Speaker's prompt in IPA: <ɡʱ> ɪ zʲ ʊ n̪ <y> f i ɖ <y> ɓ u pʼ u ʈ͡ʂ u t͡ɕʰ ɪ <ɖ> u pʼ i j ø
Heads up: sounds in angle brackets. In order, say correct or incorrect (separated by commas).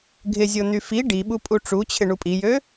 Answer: correct, correct, incorrect, incorrect